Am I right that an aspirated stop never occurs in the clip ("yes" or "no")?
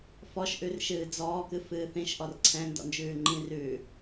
no